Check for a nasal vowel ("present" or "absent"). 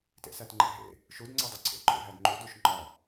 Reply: absent